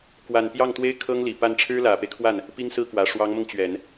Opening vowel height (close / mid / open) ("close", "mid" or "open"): open